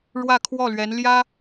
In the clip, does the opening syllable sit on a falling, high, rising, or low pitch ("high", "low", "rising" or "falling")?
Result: falling